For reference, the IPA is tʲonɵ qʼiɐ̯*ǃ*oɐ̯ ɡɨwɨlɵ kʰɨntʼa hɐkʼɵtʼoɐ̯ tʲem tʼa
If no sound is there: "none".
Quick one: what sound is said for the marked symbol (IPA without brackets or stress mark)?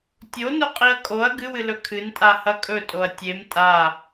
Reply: kʼ